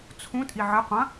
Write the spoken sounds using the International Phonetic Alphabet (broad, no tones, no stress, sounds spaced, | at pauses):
t͡sʰ ũ tʼ i ʕ ɨ qʷ ɐ̃